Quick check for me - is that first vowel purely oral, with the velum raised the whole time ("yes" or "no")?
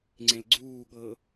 no